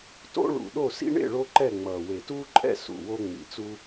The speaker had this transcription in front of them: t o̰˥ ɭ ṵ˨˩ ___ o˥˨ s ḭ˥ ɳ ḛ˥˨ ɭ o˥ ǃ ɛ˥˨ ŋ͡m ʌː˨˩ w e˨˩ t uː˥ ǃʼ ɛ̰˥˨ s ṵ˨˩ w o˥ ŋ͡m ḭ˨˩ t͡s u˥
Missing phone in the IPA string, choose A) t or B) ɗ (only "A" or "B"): B